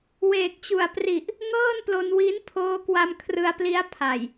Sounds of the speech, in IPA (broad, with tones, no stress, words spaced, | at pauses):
weː˨˩k̚t͡ɕu˨˩a̯pri˨˩ʔ | ŋɤː˥˩nplo˧nwi˦˥n pʰoː˦˥kwa˧m kʰrɯ˧a̯pli˦˥a̯ pʰa˨˩j